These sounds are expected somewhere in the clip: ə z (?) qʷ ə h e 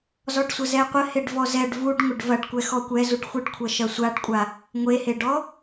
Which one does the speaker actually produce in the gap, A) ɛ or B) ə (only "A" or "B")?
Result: A